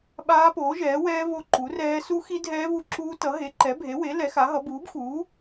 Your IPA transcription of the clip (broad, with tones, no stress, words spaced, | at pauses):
ɓaː˦˥poː˨˥ʒɛː˨˥wɛː˦˥ vo˦˥ǃu˨˥rɛː˦˥ su˦˥xi˦˥ dʱɛː˦˥vu˨˥ǁuː˦˥tʌ˨˥ ɦe˨˥ǃɛ˨˥bʱe˨˥we˨˥ lɛ˨˥xa˨˥ɦʌ˨˥ buː˨˥bxuː˨˥